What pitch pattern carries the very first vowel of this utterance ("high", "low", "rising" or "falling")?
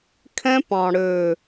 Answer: high